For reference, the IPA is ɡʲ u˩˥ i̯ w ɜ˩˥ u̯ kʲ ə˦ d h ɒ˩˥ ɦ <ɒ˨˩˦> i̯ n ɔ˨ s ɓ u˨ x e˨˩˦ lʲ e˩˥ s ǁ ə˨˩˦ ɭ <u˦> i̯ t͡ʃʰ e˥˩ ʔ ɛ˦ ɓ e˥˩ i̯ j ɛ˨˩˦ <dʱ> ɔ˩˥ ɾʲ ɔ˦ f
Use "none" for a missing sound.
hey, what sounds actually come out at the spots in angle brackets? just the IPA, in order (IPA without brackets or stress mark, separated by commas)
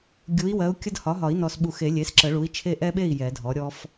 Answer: ɒ˨˩˦, u˩˥, dʱ